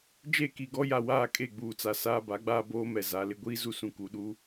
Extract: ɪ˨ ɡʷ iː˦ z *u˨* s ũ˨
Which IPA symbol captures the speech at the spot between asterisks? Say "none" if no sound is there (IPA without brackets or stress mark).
u˨